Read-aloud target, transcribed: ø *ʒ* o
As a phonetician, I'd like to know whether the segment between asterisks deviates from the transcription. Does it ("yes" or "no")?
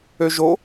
no